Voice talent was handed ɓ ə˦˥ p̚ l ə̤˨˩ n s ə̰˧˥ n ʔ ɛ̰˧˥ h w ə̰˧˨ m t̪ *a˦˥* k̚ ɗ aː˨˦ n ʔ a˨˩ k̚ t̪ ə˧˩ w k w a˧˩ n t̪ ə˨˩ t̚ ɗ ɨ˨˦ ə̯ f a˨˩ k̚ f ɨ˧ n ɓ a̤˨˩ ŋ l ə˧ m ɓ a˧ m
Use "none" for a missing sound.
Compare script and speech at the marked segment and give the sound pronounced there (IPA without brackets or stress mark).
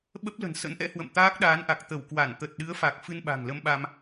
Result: aː˦˥